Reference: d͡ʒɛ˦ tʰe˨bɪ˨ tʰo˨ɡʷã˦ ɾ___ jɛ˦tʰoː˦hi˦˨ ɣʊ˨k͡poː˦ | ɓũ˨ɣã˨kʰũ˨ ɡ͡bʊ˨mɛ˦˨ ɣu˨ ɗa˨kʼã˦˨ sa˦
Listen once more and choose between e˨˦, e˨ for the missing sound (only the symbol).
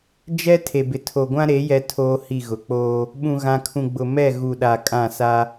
e˨˦